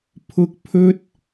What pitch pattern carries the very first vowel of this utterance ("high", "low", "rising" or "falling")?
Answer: high